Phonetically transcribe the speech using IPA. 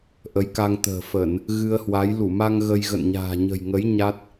ʔ ə˨˦ j k a˧ ŋ t̪ ə̤ː˨˩ f ə˧˩˨ n | ɣ ɨ˧ ə̯ h w a˨˦ j l u˧˩ m a˧ ŋ ɣ ə˧ j ɣ ə̰˧˨ n ɲ a̤ː˨˩ ɲ ə̤˨˩ j ŋ ə˨˦ j ɲ a˦˥ t̚

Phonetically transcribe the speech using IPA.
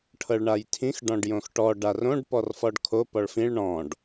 ʈʰ ɤ ɭ ɳ a j tʰ ĩ x ɖ ɔ̃ ɖ j õ x ʈ ɔ ɖ a r õ ɖ p ɔ r f ɔ ɖ kʰ o p ɔ ɭ f ĩ ɭ ɳ ɔ̃ ɖ

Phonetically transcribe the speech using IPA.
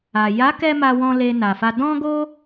a˨ j a˨˦ k ɛ˧ m a˧ w ɔ̃˧ l e˧ n a˨ f a˧ d ɔ̃˦ ɡ o˦

